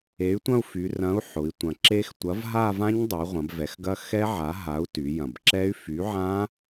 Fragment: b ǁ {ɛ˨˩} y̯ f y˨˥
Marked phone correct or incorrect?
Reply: incorrect